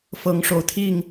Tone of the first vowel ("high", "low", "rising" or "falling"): rising